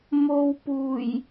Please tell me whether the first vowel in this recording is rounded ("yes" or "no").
yes